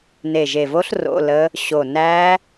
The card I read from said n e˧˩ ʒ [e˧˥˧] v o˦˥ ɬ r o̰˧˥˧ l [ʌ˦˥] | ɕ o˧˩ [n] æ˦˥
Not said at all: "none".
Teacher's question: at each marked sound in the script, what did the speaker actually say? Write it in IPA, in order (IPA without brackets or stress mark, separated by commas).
e˧˩, ə˦˥, n